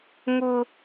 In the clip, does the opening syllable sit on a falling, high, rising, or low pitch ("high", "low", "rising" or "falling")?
low